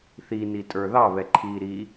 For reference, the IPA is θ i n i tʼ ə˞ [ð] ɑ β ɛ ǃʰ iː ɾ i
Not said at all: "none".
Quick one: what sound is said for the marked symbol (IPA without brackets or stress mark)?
ð